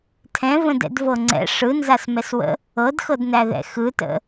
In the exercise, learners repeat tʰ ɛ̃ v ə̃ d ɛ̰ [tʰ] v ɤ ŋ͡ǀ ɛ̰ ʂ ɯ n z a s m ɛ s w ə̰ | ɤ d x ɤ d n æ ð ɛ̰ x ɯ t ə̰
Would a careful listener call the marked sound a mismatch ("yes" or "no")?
yes